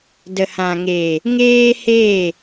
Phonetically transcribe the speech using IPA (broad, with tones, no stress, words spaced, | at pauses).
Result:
də˨hã˨ŋeː˨ | ŋeː˦heː˦˨